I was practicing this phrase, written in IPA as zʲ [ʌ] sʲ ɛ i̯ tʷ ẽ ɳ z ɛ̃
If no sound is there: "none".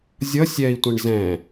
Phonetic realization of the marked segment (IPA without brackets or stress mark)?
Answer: ʌ